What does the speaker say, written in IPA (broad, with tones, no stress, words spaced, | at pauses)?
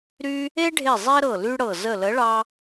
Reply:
ɾy˦ | e˦ɖʱe˧˩ zˤe˦ɾɤ˧˩ ly˦ɽɤ˧˩ zə˧˩lə˨˥ɭɑ˦